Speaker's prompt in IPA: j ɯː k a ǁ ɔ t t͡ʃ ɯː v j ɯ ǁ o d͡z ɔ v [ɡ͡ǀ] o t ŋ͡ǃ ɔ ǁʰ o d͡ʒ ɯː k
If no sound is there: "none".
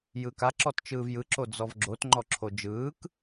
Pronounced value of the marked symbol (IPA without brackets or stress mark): ɡ͡ǁ